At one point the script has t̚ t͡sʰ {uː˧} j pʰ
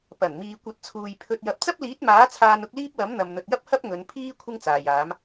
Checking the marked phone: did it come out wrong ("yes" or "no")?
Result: yes